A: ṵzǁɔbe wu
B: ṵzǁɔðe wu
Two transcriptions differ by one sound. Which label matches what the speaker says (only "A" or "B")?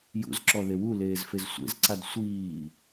B